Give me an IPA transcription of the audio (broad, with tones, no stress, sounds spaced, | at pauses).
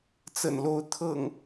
t͡s ə̰˨˩ n l o˨˦ ʊ̯ t̪ʰ ɤ̰˨˩ ŋ